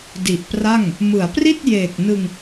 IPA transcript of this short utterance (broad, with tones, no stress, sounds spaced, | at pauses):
d i˨˩ ʔ p r a˥˩ ŋ | m ɯ˩˦ a̯ p r i˥˩ t̚ j eː˨˩ k̚ n ɯ˧ ŋ